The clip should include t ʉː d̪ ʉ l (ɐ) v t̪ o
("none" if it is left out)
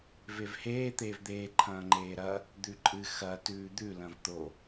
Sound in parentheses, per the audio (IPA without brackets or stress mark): ɐ̃